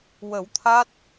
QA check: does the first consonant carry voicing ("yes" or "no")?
yes